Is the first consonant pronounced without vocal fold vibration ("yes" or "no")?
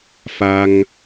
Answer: yes